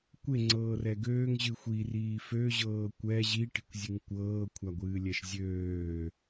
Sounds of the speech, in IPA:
kʷeŋ͡ǀɤː rɛɡøːŋ ʑɨxʷi riːfø ʑɤːkʷɛ ʑiʈi̤kʷzʲɨŋ kʷɤːkʷʰaɡʷɨː lʲɛʃzʲøː

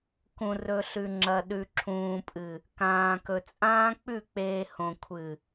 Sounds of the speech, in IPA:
kũ˨rɵ˨ ɬʉ˨ŋ͡ǁɐ˨ɗʉ˨ ǁʰũː˨pʼɨ˨ | kãː˨kɵ˨ t͡sʼãː˦k͡pʉ˦˨k͡peː˨ hõ˨ kʷʰɨ˨

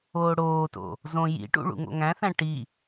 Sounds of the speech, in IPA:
oːɽoːto̰ | zõ jḭʈṵ ɭṵŋo̰ŋæ̃θæ̃ ʈi

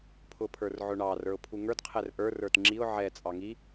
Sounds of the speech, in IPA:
pʰʊpʰə˞rʕʊɳɑ rə˞ʊ̯pʰuŋə˞d qʰɛrʔə˞r ə˞tŋ͡ǁiʊ̯ ʕɛ t͡sʼɑŋi

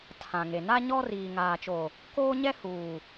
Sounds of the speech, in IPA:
tʰã˨ŋe˨ na˦ɲɔ˦ riː˨ŋaː˨t͡ʃo˨ | koː˦ɲɛ˦ huː˨

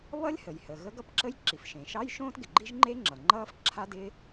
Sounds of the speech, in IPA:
βʌ˥lʲhə˩jhəː˩ ɣə˥ɡʌ˥pǁə˥j ǁi˩fʃẽ˩ ʃɑ˥j ʃõː˥tɡɪ˩ɡ͡ǃi˥ʒŋ͡ǃe˥ ŋ͡ǁʌ˩ŋ͡ǃʌː˥f ǁʰa˥dɪ˥

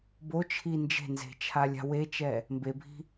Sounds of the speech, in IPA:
bot͡ʃʰi nd͡ʒe̤nze̤t͡ʃʰa lʲa̤wet͡ʃɛ | mbebʱi̤

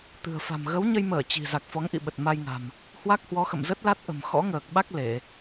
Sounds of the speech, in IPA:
t̪ɨ̤˨˩ə̯fa̤˨˩m ɣə˨˦wɲə˧jməː˧˩ t͡ɕi̤˨˩ za˨˩k̚fɔ˨˦ŋʔḭ˧˨ɓə˨˩t̚ ma˧jŋa̤˨˩m | hwa˦˥k̚hwɔ˨˦xə̰˧˨mzə˦˥t̚ la˦˥t̚ʔə̤˨˩mxɔ̰˧˥ŋəː˨˩k̚ ɓa˦˥k̚ le˧˩˨

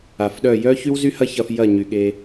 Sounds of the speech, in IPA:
a˨fɗœ˦˨ jœ˦ çy˦wzy˦hɐ˦ çɐ˧f jɐ˦˨ɲy˨ɠe˧

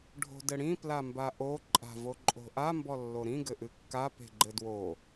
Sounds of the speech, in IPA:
ɖʱo̤dɘɽĩ plambaʔo ǃʼa̤voǃʼo̤ʔa mbɔlːoɾĩ ɡɘʔɨkːa pe̤ɡ͡ǃɘdwo

